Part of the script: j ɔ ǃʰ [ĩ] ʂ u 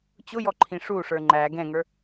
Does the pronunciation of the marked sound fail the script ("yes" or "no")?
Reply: no